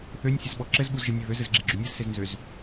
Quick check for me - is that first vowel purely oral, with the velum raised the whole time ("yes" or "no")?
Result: yes